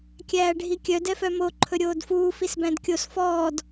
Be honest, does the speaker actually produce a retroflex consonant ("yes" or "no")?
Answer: yes